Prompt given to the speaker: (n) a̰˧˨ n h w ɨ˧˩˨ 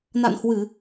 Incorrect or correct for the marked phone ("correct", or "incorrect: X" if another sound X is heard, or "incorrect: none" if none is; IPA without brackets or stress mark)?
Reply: correct